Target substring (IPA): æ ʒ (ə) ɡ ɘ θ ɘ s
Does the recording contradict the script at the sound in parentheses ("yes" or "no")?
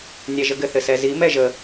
no